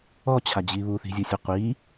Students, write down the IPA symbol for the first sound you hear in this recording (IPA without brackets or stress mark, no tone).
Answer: ɔ